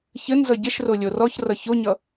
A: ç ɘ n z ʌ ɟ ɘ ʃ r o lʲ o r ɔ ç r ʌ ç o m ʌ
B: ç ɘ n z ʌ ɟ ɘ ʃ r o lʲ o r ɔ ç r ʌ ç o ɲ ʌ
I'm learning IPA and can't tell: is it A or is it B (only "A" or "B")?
B